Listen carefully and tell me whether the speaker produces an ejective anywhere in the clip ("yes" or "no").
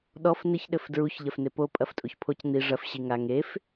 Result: yes